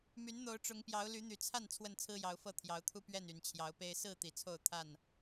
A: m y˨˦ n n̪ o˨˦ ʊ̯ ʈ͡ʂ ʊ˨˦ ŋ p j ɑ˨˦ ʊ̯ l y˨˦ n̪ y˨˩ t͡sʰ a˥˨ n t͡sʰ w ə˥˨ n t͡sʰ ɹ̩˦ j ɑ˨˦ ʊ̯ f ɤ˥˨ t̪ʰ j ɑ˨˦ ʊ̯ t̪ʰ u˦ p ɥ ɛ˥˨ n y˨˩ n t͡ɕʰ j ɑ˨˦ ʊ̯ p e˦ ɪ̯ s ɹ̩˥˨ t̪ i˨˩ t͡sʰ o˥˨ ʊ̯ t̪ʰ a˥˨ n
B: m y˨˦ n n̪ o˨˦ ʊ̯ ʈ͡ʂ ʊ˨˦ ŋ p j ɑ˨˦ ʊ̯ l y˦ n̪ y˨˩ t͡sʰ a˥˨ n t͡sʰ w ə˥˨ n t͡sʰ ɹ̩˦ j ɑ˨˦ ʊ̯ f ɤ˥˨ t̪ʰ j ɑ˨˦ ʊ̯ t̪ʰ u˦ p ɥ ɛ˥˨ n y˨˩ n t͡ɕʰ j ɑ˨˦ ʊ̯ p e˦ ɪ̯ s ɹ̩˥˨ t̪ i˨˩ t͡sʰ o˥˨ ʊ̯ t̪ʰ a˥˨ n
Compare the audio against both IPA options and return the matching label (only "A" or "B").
A